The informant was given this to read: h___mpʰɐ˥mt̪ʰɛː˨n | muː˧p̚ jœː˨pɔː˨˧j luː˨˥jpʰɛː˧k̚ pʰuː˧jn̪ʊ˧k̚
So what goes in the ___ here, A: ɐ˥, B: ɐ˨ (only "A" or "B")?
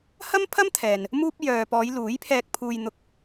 A